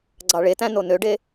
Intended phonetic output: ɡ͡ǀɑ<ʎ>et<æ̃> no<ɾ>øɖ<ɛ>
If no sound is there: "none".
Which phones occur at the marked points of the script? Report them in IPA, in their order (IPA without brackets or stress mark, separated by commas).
ɭ, æ̃, n, e